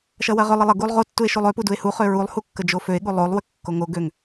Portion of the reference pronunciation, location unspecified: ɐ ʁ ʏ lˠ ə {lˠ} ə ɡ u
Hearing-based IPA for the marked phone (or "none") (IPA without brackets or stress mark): lˠ